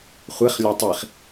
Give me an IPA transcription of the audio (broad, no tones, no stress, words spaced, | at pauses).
χʷeχlʲɒ tˤiχ